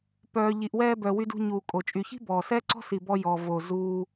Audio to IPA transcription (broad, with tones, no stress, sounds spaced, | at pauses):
p œː˨ ʎ i˨ ʔ w ɛː˧ b œ˨ w y˧ d ṳ˧ ɲ uː˨ kʼ o˨ t͡ʃʼ y˨ ç i̤˦ b ɔː˨ s ɛː˦ ǀ ɔ̤˦ s i˨ b ɔ˧ j ɔ˨ v o˨ z uː˧